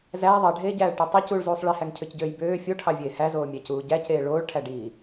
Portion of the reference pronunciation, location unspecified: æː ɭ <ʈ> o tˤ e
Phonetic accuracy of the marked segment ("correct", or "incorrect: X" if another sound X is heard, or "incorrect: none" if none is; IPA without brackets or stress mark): correct